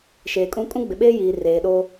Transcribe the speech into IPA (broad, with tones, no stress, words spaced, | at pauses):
ʃeː˨kʼũ˦ kʼũ˦ɡ͡bɪ˨ɓeː˦jiː˨ reː˨ɗo˦